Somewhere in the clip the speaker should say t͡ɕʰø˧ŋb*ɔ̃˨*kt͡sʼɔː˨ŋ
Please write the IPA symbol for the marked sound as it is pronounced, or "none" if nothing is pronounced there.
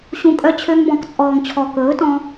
ɔ̃˨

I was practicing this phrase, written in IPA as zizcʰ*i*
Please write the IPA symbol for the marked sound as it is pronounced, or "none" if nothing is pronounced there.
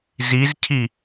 i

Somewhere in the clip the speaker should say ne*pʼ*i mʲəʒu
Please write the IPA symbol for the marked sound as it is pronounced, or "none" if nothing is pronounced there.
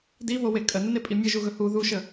pʼ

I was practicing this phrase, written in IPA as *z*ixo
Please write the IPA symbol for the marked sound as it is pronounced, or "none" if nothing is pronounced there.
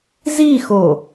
z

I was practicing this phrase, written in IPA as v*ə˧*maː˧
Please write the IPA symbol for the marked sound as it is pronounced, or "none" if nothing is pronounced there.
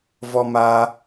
ɔ˧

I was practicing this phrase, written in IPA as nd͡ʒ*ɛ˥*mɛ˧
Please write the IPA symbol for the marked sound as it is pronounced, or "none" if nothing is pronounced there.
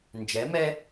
ɛ˩˧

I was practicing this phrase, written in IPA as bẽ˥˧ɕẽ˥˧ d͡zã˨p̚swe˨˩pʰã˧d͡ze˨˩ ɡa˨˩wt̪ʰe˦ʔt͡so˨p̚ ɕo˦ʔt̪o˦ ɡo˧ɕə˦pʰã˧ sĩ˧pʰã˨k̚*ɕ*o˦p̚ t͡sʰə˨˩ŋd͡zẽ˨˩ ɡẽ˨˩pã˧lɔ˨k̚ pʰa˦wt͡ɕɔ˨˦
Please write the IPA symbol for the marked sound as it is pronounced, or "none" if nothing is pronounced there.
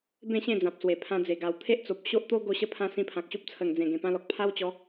ɕ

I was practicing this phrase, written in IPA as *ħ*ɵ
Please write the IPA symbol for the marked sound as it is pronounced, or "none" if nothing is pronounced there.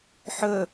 ħ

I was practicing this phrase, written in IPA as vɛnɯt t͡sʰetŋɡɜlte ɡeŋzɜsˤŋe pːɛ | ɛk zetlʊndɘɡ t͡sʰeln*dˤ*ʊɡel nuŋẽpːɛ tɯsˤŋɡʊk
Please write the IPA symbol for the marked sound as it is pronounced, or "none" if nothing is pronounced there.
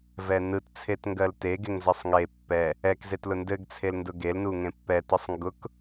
d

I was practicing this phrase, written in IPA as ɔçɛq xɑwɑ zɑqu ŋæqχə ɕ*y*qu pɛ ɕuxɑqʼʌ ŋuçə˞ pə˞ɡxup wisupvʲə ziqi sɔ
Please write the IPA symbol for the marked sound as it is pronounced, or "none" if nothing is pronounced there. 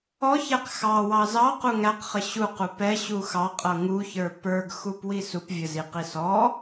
u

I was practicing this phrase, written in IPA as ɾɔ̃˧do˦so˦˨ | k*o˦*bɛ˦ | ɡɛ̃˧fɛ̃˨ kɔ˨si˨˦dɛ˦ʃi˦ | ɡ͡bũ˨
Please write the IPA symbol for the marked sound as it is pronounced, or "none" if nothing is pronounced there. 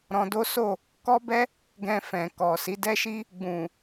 ɔ˦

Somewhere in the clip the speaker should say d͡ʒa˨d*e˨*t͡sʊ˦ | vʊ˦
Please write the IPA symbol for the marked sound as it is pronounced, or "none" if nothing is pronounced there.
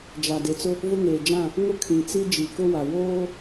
e˨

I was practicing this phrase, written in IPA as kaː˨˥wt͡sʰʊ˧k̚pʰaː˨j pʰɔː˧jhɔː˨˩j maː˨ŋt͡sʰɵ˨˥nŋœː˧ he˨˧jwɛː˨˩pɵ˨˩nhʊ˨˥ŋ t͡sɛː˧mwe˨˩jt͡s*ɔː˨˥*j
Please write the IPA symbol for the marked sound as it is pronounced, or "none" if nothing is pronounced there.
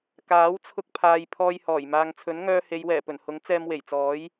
ɔː˨˥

